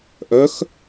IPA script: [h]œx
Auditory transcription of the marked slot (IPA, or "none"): ʔ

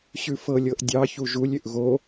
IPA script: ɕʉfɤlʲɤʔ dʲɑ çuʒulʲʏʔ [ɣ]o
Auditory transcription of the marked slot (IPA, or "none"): ɣ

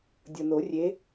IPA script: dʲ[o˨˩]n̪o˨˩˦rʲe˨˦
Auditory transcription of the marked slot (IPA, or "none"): ɤ˨˩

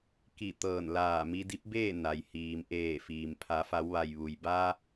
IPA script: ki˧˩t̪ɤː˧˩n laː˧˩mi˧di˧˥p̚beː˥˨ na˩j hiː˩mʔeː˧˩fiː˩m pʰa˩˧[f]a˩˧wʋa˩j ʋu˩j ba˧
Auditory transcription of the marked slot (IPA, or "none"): f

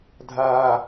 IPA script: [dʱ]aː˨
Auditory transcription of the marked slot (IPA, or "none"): dʱ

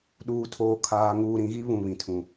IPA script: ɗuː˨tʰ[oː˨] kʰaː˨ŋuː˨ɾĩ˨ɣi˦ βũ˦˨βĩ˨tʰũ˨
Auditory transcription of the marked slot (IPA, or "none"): oː˨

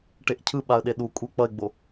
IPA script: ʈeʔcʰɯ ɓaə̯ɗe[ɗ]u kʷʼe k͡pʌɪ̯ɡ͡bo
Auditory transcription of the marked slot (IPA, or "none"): ɗ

